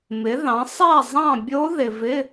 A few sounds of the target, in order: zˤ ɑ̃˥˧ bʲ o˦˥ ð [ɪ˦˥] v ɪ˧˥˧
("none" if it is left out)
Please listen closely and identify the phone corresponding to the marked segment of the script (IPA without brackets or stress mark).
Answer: ɪ˨